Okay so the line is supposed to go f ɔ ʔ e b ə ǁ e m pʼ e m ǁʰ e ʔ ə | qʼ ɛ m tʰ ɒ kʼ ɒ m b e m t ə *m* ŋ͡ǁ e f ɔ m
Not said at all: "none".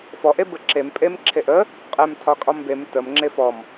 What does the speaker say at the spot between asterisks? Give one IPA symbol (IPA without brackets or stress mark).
m